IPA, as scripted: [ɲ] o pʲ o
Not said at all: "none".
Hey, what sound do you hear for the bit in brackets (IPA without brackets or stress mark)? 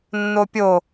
nː